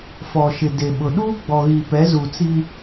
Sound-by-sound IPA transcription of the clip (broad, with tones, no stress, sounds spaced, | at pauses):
f ɔ˨ ʃ ɪ˨ d e˨ ɓ ʊ˨ ɗ uː˦ ɡ͡b ɔ˨ ɣ i˨ p ɛ˨˦ z u˨ t͡s i˦